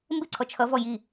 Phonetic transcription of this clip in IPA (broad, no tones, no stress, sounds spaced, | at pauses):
m b ɪ ǀʰ ɔ t͡ʃʰ ʌ v ɔ j i